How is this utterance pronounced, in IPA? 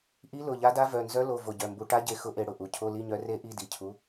ʔ i˧˥ l ʊ˩˧˩ ʎ a˧˥ d a˧˥ v œ˩˧˩ n z œ˧˥ l o˩˧˩ v o˧˩ ɟ œ˩˧˩ m b u˧˩˧ ʈ a˧˥ ɟ e˧˩ x ʊ˧˥˧ ʔ e˧˩˧ ɽ ʊ˧˩ ʔ u˩˧˩ cʰ o˧˥˧ l i˧˥˧ ɲ œ˧˥ r e˧˥ ʔ i˧˥˧ d i˧˩ cʰ u˧˥

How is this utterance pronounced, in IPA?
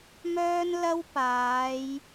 m œː˥ n l ɐ˥ w p aː˨˧ j

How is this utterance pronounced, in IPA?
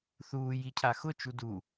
θ uː j i cʰ a x ʊ t͡ʃ u d u

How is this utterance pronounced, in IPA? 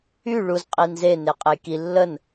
y ɭ u z qʼ i n z e n e qʼ e j k i lː ə n

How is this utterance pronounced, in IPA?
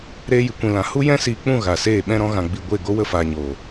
ɾ eː˧ j ɨ˨ kʷ ĩ˨ l ã˨ h u˦ j ɛ̃˦ s iː˧ k͡p ũ˦˨ ɣ a˨ s eː˦˨ ɓ ɛ̃˧ ɾ ɔ̃˧ ɣ ã˨ ɡ͡b i˨ ɡʷ e˦˨ ɡ o˦ w ə˦˨ f aː˨ ɲ oː˨

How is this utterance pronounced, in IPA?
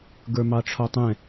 ɡ ə˞ m ɑ ʈ͡ʂʰ ɔ tˤ ɛ̃

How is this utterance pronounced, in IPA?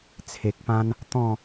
t͡sʰ e˨ k̚ p ã˦ n | t̪ ɔ̃˥˧

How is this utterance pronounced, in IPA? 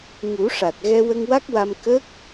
ŋ u˨˩˦ ʂ a˨˩ t̚ ɣ ɛ˧ w ə˧ ŋ w a˦˥ k̚ w a˧ m k ə˦˥ k̚

